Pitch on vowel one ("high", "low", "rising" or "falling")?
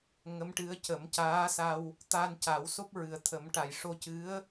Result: rising